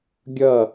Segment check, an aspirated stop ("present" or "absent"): absent